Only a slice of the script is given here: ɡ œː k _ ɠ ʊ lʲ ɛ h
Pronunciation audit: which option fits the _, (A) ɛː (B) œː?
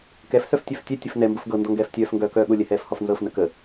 B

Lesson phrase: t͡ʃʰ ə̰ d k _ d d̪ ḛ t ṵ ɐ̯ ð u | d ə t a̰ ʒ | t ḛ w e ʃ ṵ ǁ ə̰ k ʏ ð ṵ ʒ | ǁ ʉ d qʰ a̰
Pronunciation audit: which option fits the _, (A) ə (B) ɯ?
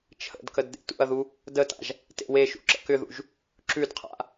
A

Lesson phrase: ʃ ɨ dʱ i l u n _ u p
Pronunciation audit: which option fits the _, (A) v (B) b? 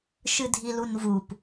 A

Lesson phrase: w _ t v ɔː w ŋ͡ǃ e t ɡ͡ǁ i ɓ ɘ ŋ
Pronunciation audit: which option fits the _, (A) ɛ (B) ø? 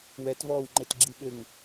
A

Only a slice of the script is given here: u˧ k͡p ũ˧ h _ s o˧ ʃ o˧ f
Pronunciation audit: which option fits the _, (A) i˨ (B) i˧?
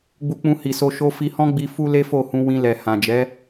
A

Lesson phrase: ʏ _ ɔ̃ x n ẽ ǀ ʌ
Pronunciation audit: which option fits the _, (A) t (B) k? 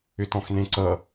A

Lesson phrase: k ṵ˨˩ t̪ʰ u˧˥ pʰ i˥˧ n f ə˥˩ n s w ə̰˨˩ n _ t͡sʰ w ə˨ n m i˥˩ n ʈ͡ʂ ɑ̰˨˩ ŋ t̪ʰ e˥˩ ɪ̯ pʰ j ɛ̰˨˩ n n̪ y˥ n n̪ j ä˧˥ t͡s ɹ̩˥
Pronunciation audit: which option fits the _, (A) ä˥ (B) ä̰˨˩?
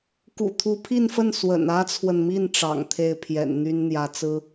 A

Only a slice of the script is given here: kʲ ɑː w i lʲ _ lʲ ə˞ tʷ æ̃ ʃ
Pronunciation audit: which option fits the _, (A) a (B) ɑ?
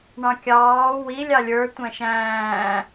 B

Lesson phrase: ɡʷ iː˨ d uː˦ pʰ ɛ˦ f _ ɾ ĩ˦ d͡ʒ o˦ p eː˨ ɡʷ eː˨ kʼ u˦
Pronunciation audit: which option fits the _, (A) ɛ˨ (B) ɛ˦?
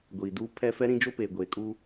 B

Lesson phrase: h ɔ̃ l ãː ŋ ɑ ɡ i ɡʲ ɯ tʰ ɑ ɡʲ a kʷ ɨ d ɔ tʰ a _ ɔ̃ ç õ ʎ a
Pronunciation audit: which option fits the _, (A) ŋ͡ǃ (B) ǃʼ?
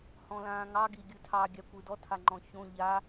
A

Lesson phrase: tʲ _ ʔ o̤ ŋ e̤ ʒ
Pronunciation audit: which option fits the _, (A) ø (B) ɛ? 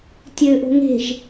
A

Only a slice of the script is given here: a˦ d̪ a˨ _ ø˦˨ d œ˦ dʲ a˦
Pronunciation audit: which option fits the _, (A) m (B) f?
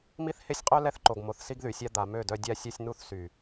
A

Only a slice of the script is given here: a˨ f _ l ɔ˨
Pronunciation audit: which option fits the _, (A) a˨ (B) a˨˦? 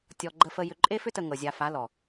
B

